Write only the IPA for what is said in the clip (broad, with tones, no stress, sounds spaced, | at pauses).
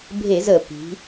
bʱ e˧˩˧ z ə˧˩˧ p i̤˩˧